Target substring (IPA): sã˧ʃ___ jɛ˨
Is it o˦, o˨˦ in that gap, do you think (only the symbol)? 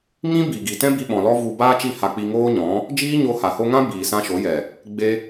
o˨˦